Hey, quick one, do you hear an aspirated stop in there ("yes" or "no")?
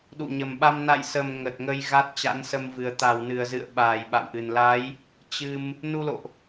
no